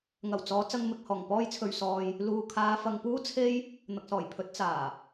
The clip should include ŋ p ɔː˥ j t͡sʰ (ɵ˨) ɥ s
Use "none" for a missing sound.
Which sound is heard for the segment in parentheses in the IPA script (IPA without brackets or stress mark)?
ɵ˧